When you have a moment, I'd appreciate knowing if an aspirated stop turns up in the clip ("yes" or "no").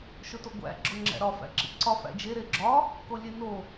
no